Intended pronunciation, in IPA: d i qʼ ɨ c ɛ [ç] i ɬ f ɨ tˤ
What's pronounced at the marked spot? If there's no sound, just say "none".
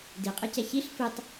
ç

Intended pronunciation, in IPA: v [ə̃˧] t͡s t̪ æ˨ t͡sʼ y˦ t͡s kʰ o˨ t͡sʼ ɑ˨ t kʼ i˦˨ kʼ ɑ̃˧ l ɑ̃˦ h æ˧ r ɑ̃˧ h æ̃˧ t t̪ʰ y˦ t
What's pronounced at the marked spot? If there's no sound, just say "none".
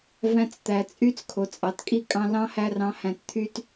æ̃˧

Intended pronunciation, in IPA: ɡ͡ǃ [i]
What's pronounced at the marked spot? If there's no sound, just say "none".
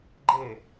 e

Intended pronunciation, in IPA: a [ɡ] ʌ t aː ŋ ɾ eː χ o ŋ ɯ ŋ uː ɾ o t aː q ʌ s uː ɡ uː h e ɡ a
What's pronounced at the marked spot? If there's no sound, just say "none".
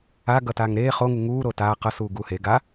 ɡ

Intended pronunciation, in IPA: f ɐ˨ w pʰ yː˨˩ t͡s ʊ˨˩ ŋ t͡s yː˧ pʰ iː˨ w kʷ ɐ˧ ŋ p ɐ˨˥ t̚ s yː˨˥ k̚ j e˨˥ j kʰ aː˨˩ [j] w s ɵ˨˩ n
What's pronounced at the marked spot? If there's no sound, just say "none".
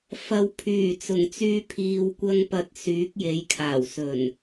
none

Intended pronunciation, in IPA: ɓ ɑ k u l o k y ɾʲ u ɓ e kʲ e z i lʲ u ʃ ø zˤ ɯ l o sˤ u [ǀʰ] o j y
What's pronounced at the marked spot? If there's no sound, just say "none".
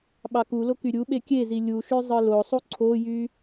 ǀʰ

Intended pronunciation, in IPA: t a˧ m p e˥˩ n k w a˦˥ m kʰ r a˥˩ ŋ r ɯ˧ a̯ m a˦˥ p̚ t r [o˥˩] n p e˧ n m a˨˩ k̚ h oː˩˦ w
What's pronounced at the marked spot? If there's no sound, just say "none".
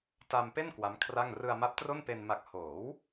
o˥˩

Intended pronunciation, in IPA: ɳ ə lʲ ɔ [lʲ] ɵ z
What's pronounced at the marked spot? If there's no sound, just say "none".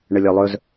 lˠ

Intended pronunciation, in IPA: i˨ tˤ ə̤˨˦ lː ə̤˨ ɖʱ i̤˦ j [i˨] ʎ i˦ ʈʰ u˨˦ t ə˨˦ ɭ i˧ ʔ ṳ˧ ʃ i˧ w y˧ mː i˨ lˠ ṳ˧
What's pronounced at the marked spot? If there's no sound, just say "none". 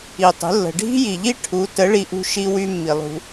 i˨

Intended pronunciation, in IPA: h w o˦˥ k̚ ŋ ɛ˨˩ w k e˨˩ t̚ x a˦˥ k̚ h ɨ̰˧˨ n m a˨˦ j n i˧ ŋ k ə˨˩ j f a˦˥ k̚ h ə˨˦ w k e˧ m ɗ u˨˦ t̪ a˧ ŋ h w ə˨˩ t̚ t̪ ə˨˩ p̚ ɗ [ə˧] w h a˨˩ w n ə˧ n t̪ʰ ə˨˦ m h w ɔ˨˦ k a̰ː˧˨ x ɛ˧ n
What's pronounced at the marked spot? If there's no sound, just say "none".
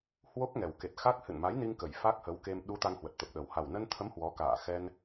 ə˨˩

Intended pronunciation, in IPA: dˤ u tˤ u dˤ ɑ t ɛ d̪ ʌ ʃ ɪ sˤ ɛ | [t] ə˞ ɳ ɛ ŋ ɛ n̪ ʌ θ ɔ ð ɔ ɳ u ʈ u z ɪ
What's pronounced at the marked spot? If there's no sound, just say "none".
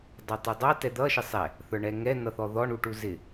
θ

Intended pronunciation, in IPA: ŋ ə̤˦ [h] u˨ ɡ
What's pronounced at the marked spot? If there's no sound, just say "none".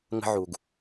ʕ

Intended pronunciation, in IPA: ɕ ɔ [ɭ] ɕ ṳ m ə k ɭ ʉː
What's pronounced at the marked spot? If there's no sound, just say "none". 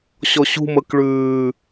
none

